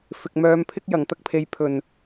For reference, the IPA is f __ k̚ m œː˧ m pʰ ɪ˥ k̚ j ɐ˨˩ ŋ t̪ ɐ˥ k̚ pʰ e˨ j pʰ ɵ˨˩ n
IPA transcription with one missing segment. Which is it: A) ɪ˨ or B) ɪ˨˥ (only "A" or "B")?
A